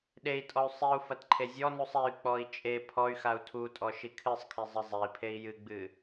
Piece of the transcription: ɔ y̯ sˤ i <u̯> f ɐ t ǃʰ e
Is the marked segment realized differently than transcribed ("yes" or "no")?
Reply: no